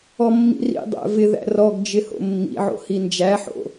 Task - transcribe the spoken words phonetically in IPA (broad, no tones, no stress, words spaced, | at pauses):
ɔmːḭrḭ dˤæ̰vɪðæ̰ rɔɡd͡ʒɪ ho̰mːḭʕo̰ hind͡ʒæħo̰